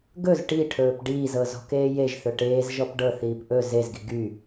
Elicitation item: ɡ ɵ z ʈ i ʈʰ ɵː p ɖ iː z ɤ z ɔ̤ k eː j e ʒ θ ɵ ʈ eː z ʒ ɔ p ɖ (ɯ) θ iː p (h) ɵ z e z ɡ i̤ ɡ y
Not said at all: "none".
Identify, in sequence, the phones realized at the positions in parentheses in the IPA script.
ɤ, ʔ

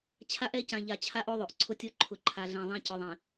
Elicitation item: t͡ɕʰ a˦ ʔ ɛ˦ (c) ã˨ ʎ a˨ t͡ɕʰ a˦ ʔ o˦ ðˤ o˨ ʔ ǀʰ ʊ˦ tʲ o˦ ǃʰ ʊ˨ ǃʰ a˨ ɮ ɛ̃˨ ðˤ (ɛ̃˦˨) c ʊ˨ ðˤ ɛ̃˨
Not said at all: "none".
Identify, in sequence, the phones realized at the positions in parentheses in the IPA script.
c, ɛ̃˦

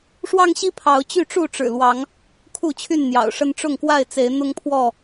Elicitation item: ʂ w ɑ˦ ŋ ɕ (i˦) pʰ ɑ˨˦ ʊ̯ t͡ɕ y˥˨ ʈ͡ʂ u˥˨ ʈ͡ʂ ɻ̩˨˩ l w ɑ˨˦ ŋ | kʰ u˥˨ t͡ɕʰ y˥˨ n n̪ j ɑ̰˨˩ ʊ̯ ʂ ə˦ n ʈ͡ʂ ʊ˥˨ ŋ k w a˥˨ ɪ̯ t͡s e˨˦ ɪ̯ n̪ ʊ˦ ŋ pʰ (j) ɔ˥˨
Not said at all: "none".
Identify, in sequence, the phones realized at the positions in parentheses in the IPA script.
i˦, w

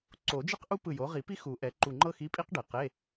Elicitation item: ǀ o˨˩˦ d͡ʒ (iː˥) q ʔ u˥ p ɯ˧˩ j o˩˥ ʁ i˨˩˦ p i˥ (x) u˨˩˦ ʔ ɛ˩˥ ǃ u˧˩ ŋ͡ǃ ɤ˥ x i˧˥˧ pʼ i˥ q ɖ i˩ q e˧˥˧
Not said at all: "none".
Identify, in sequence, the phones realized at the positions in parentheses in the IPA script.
i˥, x

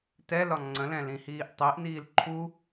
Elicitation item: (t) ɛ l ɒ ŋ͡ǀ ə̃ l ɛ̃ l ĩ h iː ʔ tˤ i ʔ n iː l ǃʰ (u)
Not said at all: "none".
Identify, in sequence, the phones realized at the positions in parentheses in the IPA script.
t, u

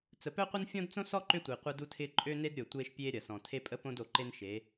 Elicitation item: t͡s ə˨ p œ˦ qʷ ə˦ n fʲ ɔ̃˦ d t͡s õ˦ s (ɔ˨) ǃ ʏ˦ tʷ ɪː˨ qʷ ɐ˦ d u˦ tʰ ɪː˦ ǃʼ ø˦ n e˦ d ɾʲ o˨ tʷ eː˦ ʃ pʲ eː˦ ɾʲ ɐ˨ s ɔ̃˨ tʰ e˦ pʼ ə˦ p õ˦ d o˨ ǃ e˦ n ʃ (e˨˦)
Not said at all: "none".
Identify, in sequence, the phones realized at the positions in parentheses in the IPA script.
ɔ˦, e˨˦

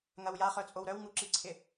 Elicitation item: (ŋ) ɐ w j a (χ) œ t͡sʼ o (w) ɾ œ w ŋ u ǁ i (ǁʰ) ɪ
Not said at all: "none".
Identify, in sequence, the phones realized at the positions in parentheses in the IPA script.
ŋ, χ, w, ǀʰ

